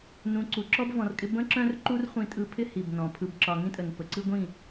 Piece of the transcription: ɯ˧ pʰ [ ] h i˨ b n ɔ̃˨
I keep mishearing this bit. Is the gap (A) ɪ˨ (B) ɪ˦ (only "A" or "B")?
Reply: B